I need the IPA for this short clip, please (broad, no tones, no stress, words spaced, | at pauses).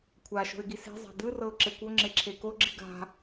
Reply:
kʷʰa ʃo̤ɪ̯ɡise̤ zˤa̤d̪ɯ rɤʊ̯ǁekʷo ŋ͡ǁeǁʰeko ɡ͡ǁiɡa̤